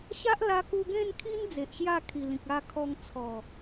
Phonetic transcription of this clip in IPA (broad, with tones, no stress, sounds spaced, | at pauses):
ɕ a˦ ʔ l a˧ k u˧ ɡ ẽ˥˧ n kʰ i˦ n d͡z e˨ ʔ ɕ j a˥˧ kʰ i˨˩ l ĩ˨ k̚ a˧ kʰ ɔ˧ ŋ t͡sʰ ɔ˨˩